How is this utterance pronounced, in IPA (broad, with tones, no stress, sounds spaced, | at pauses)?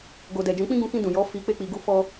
ɡ o˨ d ɛ˨ d͡ʒ ũ˨˦ k͡p ĩ˦ ɡ ũ˧ k ĩ˧ d ũ˨ j ɔ˨˦ f i˧ k͡p e˦ k͡p i˧ ɡ u˦ f ɔ˦